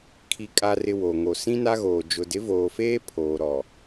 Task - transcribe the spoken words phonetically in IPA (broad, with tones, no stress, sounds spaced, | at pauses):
kʰ i˨ kʼ a˨ r ɪ˨ w o˨ ŋ o˨ s ĩ˦ n a˦ ɣ oː˨ d͡ʒ ʊ˨ d ɪ˨˦ v oː˨ f eː˦ pʰ oː˨ ɾ ɔ˨